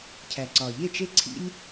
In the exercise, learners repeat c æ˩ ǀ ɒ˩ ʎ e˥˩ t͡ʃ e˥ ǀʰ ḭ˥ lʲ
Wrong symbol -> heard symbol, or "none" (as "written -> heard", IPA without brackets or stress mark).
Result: c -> cʰ